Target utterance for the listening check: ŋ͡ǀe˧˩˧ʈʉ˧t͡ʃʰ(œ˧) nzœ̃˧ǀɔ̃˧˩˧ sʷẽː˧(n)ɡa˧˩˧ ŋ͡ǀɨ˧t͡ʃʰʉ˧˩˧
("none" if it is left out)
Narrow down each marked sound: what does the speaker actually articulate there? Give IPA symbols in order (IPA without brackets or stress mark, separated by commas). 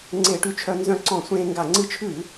œ˧, ŋ